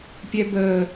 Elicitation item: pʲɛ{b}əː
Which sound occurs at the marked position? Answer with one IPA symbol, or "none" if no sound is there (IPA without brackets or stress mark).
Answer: b